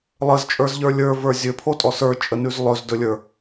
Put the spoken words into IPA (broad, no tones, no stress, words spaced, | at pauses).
lˠəzt͡ʃʼə˞zʎə˞ lʲə˞və˞ zʲɵpʰotʼɔ sə˞t͡ʃʼənʉz lˠɵzdɵlʲə˞